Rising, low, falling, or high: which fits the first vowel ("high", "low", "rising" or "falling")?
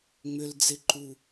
low